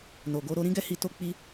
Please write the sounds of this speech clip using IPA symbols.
n o˨ ɡ o˧ ɾ o˦ ɾ ĩ˦ ɡ ɛ˦ h i˧ t o˦ k͡p i˦

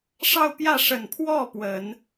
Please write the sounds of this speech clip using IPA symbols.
ʂ ɑ˥˧ ʊ̯ p j ä˥˩ ʂ ə˨˩ n pʰ w ɔ˥˩ p w ə˨˩˦ n

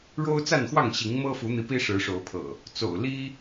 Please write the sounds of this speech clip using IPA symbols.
ɻ o˦ ʊ̯ t͡s a˥˨ n x w ɑ˥˨ ŋ ɕ i˨˦ ŋ m ɤ˦ f u˨˦ n̪ i˨˦ p i˦ ʂ ɻ̩˨˦ ʂ o˨˦ ʊ̯ pʰ ɤ̰˨˩ | t͡s o̰˨˩ ʊ̯ l i˦

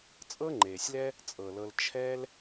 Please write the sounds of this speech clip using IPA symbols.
t͡sʼ ɤ˦ ŋ͡ǃ eː˨ sʲ l ɛ˦ | t͡sʼ ɤ˨ l ɤ˧ l t͡ʃʰ ɛː˦ l

